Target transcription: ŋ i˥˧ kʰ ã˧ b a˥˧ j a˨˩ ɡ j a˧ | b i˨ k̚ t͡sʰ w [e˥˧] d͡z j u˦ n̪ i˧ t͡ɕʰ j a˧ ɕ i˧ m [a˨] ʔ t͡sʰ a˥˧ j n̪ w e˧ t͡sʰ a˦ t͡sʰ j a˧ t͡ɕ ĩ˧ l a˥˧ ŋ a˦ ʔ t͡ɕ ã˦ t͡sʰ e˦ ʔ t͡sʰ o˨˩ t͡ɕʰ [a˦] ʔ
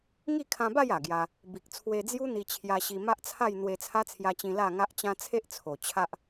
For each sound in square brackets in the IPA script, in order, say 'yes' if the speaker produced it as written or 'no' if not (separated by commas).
no, no, yes